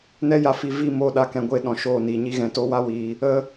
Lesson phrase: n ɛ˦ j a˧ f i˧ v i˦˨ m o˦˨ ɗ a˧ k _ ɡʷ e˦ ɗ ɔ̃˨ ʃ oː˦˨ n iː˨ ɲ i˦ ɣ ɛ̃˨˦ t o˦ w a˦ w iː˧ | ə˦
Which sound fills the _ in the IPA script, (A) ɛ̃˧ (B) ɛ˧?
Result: A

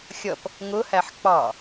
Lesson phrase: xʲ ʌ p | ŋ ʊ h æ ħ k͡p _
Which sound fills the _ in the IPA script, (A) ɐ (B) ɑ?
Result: B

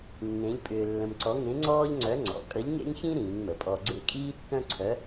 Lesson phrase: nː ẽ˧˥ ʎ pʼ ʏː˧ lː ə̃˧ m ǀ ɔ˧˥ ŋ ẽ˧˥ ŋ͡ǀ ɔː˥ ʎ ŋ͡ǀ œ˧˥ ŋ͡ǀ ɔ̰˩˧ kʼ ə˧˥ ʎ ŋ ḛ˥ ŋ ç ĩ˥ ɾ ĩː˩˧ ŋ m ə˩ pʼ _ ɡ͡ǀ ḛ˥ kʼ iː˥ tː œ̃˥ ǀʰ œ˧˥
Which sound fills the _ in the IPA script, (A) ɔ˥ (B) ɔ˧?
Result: B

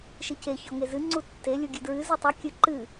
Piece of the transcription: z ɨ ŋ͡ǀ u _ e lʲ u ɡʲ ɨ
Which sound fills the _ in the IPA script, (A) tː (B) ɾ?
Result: A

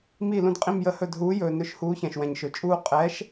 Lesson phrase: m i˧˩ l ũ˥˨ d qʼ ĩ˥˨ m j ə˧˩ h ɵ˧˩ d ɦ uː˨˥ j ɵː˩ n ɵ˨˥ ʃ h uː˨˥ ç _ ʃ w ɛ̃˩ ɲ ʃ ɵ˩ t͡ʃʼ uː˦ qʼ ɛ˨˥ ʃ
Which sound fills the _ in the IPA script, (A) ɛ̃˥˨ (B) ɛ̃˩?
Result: B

